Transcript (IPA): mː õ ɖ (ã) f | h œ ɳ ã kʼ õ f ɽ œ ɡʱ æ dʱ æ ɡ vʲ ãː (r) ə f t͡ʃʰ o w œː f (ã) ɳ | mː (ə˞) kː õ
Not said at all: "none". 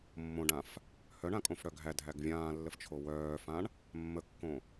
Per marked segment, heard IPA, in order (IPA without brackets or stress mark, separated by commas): ã, lː, ã, ə